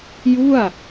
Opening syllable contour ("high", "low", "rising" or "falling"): falling